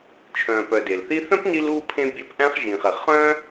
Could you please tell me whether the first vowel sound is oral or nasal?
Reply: nasal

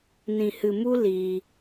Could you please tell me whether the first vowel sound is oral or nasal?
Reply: nasal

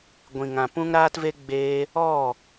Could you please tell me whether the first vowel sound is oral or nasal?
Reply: nasal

